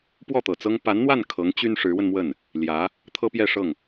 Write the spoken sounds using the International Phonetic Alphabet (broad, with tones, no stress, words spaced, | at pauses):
pwɔ˥˩t̪ɤ˨˩t͡sɤ˥ŋ pa˧˥nn̪wa˥˩n kʰɤ˧˥ŋ t͡ɕy˥nʂɻ̩˧˥wə˧nmwə˥˩n | ljä˧˥ | t̪ʰɤ˥pjɛ˥˧ʂɤ˥˩ŋ